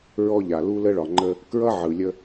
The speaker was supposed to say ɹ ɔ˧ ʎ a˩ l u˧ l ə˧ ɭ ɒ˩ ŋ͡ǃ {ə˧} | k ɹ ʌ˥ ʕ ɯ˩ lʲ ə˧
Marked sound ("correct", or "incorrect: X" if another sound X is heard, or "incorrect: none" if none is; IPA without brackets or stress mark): correct